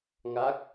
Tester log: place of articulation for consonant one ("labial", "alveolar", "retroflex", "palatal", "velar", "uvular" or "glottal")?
velar